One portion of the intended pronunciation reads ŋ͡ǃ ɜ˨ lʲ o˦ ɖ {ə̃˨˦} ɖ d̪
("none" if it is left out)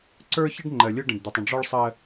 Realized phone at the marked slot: ə̃˨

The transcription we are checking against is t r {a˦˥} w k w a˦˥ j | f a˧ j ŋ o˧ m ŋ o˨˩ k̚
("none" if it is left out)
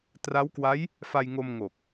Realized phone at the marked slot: a˦˥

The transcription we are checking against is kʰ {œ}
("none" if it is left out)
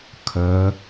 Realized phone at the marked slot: œ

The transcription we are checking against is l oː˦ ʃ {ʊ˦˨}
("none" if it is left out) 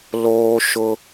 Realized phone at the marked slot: ʊ˦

